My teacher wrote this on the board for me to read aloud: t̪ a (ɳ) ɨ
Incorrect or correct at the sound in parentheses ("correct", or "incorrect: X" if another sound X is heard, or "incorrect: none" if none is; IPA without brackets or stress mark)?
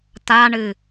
correct